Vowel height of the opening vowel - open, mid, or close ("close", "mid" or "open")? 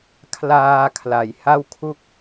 open